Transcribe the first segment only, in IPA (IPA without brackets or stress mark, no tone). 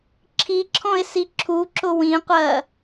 ǁʰ